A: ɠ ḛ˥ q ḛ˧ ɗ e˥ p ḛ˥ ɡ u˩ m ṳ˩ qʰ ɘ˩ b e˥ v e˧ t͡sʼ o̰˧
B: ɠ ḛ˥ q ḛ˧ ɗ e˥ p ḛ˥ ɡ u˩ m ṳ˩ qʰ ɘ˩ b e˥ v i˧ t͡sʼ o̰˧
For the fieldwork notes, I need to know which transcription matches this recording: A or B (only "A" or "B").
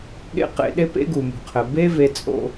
A